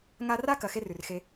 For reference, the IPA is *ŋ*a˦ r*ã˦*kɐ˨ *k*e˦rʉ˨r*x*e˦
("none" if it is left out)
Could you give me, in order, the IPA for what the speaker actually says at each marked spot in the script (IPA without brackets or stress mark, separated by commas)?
ŋ, a˦, x, x